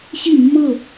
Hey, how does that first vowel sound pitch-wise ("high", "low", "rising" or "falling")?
falling